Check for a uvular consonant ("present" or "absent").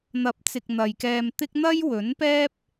absent